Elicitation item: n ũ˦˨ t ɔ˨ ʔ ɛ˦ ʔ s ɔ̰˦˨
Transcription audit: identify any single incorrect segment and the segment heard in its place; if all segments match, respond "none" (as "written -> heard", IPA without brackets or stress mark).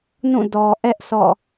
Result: t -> d